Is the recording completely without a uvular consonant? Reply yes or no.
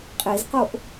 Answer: no